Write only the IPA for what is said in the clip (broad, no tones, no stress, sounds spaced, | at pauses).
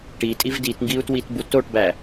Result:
ʈ i tʼ i v d i t ŋ ɡ i u̯ t w i t b u t o ʈ b æ